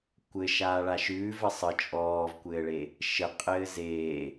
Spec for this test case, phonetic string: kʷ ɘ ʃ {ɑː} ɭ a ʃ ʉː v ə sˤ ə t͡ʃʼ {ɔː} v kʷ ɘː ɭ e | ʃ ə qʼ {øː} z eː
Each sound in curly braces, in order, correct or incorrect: incorrect: aː, correct, incorrect: ɘː

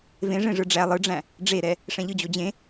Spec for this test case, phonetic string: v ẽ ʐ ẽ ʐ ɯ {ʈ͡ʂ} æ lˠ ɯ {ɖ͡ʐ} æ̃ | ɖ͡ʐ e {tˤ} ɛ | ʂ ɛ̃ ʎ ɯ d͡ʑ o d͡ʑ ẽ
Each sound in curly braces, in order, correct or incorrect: incorrect: ɖ͡ʐ, correct, incorrect: ɾ

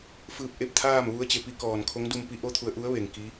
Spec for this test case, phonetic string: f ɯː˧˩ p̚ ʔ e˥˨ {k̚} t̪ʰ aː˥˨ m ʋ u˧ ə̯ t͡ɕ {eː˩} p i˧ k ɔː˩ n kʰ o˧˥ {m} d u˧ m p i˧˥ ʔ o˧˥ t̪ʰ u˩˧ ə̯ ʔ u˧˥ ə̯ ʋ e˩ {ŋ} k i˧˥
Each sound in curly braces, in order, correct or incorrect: incorrect: p̚, incorrect: e˩, incorrect: ŋ, correct

